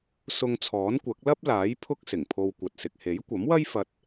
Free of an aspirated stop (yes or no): no